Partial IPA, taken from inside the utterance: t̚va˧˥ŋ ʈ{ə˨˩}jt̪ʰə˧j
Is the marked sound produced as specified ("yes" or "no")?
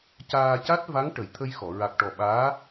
yes